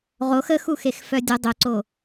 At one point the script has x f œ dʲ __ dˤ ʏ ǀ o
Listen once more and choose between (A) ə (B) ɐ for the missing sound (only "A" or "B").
A